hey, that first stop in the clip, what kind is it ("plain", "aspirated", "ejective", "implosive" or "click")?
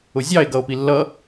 plain